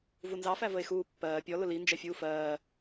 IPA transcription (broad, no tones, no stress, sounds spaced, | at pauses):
v u n z ɑ f æ v ə e̯ x uː pː ɜː pʲ ɔ l ʊ l i n d͡ʒ ɛ fʲ uː f ɜː